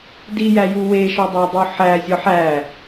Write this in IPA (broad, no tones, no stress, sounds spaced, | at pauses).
d i j æ j u w e ʃ ɒ dˤ æ dˤ u ħ æ zʲ ɒ ħ æ